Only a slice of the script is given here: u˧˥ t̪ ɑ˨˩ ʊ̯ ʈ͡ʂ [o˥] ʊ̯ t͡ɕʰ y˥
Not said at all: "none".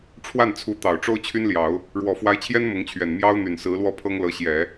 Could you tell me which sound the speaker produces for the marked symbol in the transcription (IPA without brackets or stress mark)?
o˥